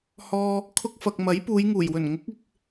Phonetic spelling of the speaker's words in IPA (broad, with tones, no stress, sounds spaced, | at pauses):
h ɔː˧ | kʰ ʊ˧ k̚ f ɐ˨ k̚ m ɐ˨˥ j p uː˨˧ j ŋ uː˨˩ j w ɵ˨˩ n ŋ ʊ˨˥ k̚ ɪ˨ k̚